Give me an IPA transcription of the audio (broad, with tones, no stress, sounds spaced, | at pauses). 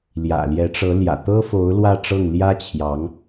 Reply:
l j ä̰˨˩ l j ɛ˧˥ ʈ͡ʂ ɤ˧˥ l j ä̰˨˩ t̪ ɤ˥ f o˧˥ ʊ̯ l w ä˥˧ ʈ͡ʂ ɤ˥˩ ŋ l j ä˥ t͡ɕʰ j ɑ˧˥ ŋ